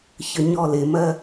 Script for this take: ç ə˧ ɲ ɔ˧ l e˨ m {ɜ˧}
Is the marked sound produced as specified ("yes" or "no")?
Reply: yes